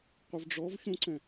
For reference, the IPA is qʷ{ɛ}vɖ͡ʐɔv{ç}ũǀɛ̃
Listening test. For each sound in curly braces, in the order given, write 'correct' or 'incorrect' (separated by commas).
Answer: incorrect, correct